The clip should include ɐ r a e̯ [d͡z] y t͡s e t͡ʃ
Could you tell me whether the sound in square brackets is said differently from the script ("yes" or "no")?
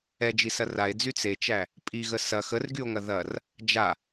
no